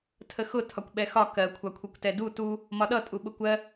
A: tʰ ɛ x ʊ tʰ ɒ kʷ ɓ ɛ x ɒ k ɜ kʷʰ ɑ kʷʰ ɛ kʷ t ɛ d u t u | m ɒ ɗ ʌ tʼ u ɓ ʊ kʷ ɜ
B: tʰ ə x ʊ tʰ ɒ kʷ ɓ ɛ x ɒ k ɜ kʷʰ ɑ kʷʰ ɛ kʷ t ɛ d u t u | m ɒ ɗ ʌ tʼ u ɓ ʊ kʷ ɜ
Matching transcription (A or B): B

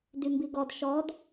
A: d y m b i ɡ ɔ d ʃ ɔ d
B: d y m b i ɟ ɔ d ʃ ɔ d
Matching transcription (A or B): A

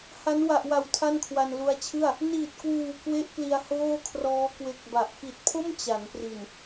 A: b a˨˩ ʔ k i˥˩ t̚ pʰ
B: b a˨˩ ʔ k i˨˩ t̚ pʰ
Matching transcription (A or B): B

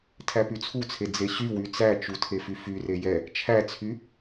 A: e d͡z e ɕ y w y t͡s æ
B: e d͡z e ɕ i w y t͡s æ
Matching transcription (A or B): A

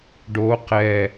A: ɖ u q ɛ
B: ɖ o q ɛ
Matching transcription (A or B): B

